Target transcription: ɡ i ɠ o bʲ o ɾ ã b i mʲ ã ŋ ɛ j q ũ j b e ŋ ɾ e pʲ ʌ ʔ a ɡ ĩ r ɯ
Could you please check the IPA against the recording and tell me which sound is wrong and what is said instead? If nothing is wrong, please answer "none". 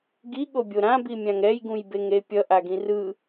q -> ɡ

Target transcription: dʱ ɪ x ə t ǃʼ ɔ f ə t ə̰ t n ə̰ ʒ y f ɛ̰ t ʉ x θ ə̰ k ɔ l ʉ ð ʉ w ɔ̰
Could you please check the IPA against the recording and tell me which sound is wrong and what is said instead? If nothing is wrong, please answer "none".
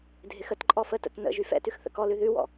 none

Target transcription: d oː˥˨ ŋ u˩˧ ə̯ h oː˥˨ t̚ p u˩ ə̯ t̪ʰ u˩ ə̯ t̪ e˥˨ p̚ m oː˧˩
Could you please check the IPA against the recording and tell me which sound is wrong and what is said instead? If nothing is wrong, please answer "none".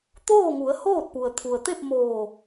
d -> t̪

